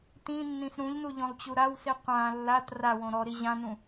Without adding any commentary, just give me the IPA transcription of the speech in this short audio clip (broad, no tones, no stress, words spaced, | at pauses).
tĩnːĩs ɾũʎnu ʎõlˠt͡ɕuɾawsi qʷã lːat rawõ ɾɔɾi ʑãnũ